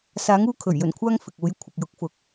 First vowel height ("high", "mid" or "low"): low